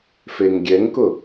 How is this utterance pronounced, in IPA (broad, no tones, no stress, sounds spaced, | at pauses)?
f e ŋ ɡʲ ɛ ŋ k ʊ